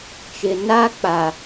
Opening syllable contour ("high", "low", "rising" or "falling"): low